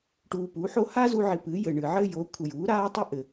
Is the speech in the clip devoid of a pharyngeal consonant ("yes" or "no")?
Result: no